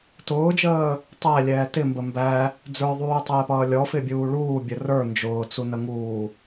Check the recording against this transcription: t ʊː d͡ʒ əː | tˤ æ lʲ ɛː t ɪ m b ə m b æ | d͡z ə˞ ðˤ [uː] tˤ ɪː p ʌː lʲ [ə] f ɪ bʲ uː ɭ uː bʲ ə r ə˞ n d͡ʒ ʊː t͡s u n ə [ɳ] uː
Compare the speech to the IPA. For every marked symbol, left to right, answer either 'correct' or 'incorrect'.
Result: correct, incorrect: ɔ, incorrect: ŋ

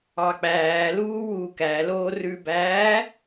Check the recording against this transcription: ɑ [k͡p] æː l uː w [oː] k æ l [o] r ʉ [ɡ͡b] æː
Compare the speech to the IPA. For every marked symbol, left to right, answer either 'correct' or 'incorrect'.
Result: correct, incorrect: uː, incorrect: oː, incorrect: b

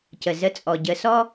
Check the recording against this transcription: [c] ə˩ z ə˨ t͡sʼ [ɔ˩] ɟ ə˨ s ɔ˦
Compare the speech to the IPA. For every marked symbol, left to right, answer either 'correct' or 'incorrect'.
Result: correct, correct

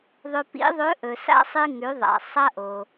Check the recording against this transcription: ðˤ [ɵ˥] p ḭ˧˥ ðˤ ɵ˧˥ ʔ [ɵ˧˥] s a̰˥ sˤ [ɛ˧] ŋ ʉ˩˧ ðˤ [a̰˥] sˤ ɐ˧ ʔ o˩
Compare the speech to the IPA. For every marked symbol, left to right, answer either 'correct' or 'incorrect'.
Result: incorrect: ɵ˧, incorrect: ɵ˩, incorrect: ɨ˧, incorrect: a̰˩

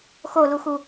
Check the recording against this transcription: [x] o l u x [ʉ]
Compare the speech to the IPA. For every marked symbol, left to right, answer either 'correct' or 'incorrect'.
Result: correct, incorrect: u

